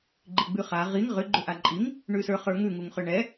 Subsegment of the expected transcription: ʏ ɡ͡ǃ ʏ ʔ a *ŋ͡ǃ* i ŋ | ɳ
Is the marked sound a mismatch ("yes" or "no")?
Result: yes